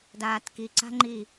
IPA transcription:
d aː t k i ǀ a̤ ŋ͡ǃ i

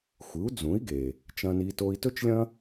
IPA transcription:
xʷ ɨ˩˥ u̯ d͡z ũ˩˥ i̯ ɡ e˩ | t͡ʃ ɐ̃˧ n i˧ t o˧ i̯ t ɵ˥ t͡ʃ lʲ ɐ̃˥

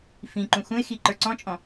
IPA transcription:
f ĩ ǃ ũ x ũ ɪ̯ x i ǃ ə˞ ǀ ɔ̃ t͡ʃʼ ɔ̃

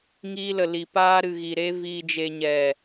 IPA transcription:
ŋ iː˧ l ə˨ l i˨ p aː˧ ɾ ɨ˨ ɣ i˨ ɾ e˧ v iː˨ d͡ʒ e˨ ɲ ɛ˨

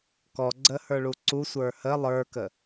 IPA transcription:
k ɔ ɡ͡ǀ ə h ə˞ ɭ u ǀ u sʷ ə˞ h ə lˠ ə˞ k ə

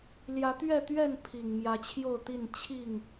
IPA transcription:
l j ä˨˦ t̪ ɥ ɛ˥˨ t̪ ɥ ɛ˥˨ n pʰ i˨˩ ŋ m j ä˨˦ t͡ɕʰ j o˥˨ ʊ̯ t̪ i˥˨ n t͡ɕʰ i˥˨ ŋ

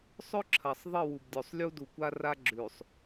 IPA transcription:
sˤ ɵ˦ ǁʰ ɐ˨ sˤ ðˤ ɨ˦˨ w u˨ b dʲ o˨ sˤ lʲ u˦ d u˨ kʷ a˦ r a˦ ɡ͡ǁ ʉ˨ sˤ

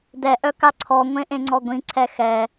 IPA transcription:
d ɛ ʔ œ k a ǀʰ ɔ ŋʷ ẽ ʔ ẽ ŋ͡ǀ ɔ ɡʷ ĩ ǀʰ ɛ x ɛ

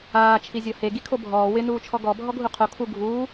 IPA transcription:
aː t͡ʃʰ i zʲ ɔ h e ɡ i kʰ o bʱ ɔː w ɪ n uː t͡ʃʰ ɔ ɡ ɔ bʱ ɔ ɡʱ u qʰ o kʰ u ɡʱ uː

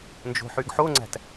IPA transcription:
n d͡ʒ o̤ ħ y ɡ ħ o ŋ͡ǀ æ̤ t

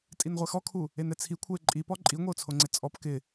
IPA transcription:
tʼ i n ʁʷ ɛ x ɔ kʰ u | e n ɛ t͡sʰ i kʷʰ ɛ ɪ̯ ǃʼ i p ɔ ǃʼ i ŋʷ ɛ ʊ̯ t͡sʰ o ŋ͡ǀ ɪ t͡sʼ ɔ p k ɪ

